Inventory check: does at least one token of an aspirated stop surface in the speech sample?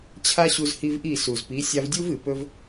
yes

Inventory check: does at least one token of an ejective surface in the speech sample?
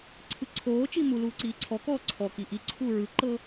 no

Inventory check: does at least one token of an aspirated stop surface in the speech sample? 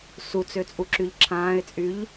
yes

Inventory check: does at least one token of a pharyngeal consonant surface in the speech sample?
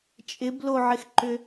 yes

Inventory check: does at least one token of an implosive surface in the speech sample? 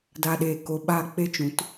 yes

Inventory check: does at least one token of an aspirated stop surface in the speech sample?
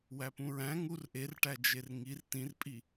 no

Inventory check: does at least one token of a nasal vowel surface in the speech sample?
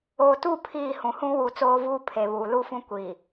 yes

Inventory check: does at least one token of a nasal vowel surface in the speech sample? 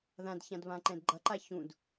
yes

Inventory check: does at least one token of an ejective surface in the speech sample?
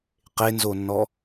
no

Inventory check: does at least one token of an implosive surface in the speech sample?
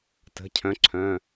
no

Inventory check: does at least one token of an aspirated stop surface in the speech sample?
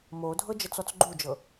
no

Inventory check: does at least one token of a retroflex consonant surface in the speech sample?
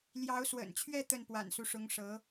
yes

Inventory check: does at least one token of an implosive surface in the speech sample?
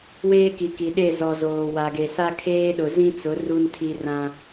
yes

